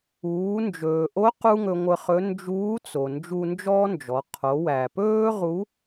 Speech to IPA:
uː˩˧ nd͡ʒɵː˩ʔo˧˥ qu˥ŋɵ˧ŋʷə˧χɵ˧˥ nd͡ʒuː˧˥t͡so˩ nd͡ʒu˧nd͡ʒɔː˥nd͡ʒɔ˩˧ qʰo˩˧wæ˩pɵː˥ ʁu˧˥

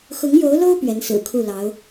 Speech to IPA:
xʊ˧˥ŋjo˧˥ʊ̯lo˥ʊ̯ pɥɛ˧˥nsɹ̩˨˩kʰu˥˩lɑ˧˥ʊ̯

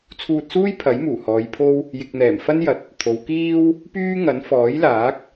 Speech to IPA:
t͡sʰuː˧t̚suː˥j pʰɐ˨˥jmuː˨˩hɔː˨˧jpʰo˥w | jɪ˨k̚n̪ɛː˨˩m fɐ˥njɐ˨t̚ | t̪ʰo˨˧wkiː˥w | pyː˥ŋɐ˨˥n fɔː˨˥jlaː˨˥k̚

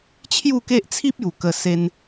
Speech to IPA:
t͡ɕʰju˥˧ke˦ʔt͡sʰi˦p̚ ju˨˩ kə˧se˧n

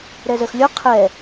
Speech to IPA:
ɾɛzəxlʲo qʰɛ

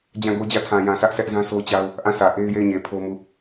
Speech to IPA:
d͡ʑã˦˨ɡo˦d͡ʑä˦˨ tʰã˨jã˨sʰä˦ʔ sʰɛ˦ʔzã˦sʰo˦t͡ɕa˦ʊ̯ | ʔã˦˨sä˨ ʔe˦ɪ̯je˦˨ɪ̯ɲe˨ pʰo˦mu˦˨

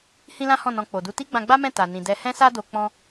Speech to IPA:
hĩ˦lã˦hɔ̃˦˨nɔ̃˧ k͡po˨du˧ ti˦ɡ͡bã˧ɡ͡ba˦ mɛ̃˦˨ ta˨nĩ˨ dɛ˨hɛ̃˧sa˧do˨ k͡pɔ̃˧

